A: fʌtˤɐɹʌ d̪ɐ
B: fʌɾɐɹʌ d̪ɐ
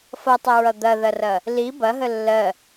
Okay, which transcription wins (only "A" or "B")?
A